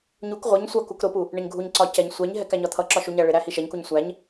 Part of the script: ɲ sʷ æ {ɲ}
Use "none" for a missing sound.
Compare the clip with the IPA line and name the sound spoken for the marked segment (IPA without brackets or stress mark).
ɲ